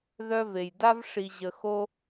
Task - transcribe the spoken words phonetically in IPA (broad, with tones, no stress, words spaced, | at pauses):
ðœ˦ve˩jda˥v ʂi˨ʑə˨xo˥